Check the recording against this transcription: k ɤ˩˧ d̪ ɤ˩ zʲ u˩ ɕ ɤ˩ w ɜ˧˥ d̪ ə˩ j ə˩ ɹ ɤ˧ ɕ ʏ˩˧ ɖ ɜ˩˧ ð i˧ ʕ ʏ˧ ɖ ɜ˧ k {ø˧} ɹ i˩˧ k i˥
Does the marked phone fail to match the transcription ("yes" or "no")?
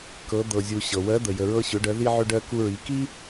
yes